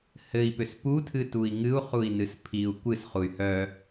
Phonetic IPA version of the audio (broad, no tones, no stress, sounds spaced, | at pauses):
h ɘ i̯ p ʏ s p u tʰ ɨ t u i̯ ŋ ɨ u̯ χ u i̯ n ɨ s pʰ i u̯ kʷ ɨ s χ u y̯ h œ